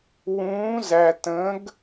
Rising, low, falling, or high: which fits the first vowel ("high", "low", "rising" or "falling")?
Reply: rising